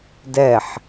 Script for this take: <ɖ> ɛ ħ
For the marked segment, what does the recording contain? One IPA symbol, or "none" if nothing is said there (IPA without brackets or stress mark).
d